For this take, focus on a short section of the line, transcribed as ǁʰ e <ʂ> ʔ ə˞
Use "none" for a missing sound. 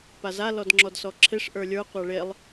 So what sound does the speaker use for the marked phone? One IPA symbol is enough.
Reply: ʂ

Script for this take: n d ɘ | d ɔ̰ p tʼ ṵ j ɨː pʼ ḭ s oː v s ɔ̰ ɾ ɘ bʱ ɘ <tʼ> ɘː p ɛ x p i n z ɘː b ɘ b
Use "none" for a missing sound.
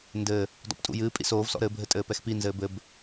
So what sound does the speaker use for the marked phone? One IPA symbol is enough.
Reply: tʼ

